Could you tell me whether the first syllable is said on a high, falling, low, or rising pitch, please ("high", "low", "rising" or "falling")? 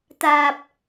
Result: low